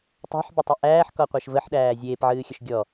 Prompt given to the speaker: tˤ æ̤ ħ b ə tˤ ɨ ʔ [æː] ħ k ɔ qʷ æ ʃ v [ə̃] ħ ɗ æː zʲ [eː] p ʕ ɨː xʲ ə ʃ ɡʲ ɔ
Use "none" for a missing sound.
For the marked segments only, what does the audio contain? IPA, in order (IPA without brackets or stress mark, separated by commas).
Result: æː, ə, eː